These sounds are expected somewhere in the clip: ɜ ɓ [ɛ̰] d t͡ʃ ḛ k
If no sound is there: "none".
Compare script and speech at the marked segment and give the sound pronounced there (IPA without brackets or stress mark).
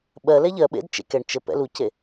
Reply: ḛ